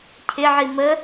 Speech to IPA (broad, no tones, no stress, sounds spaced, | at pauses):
cʰ ɪ ʕ i m ə